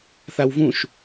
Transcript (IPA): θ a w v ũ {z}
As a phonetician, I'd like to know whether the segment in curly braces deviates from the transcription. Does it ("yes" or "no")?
yes